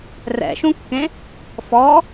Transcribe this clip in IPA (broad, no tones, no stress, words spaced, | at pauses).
rɛ̰ʃũkːẽ | fɔ